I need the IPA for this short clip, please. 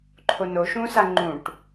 ǃʰ o n o ʃ ũ s a ŋ͡ǃ ũ ʈ

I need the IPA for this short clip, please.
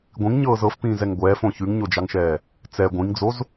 ɡʷ ĩ ŋ ɲ ɤː z ɤ f p ĩː z ɛ ŋ ɡʷ ɛː f õ ç ʉ ŋ ɲ o d͡ʒ ɑ ŋ ʃ ɛː | t͡s ɛ ɡʷ ĩ ŋ d͡z o z

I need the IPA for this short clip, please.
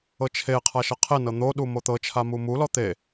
ɤ t͡ʃʰ e qʰ a ʃ ɤ qʰ e n ɤ n̪ o ɗ u m o t̪ ɤ t͡ʃʰ a m u m u l ɔ t̪ e

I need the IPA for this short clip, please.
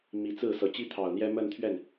m i˧˥ t͡s ɹ̩˥˩ s ɤ˨˩ t͡ɕ i˥ t̪ʰ ɑ˨˩ ʊ̯ n̪ j ɛ˥ m ə˥˧ n t̪ʰ ɥ ɛ˥˩ n

